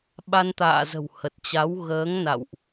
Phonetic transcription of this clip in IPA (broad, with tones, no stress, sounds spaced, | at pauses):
ɓ a˧ n t̪ a̰ː˧˨ z ə̤˨˩ w h ə˨˩ t̚ t͡ɕ a˨˦ w ɣ əː˨˦ ŋ n a̰˧˨ w ʔ